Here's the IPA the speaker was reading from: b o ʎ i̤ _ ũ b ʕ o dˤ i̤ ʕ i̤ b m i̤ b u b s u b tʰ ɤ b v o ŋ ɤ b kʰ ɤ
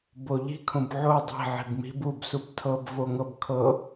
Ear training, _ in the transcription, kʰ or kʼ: kʰ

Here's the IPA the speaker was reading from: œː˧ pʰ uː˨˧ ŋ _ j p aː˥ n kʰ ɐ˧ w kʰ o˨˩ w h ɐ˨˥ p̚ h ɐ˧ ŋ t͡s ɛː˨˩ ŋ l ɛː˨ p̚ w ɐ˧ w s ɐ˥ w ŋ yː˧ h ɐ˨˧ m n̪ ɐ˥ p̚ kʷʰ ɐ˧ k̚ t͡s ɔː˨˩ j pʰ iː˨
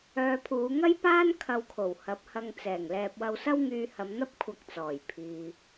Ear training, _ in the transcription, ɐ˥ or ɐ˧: ɐ˥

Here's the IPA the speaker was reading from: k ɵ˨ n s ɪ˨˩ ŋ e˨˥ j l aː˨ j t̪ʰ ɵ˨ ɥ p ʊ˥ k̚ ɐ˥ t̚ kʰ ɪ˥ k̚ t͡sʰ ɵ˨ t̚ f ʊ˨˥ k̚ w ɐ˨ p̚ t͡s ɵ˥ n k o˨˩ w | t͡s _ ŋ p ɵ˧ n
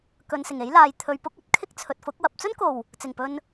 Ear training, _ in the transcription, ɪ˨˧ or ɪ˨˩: ɪ˨˩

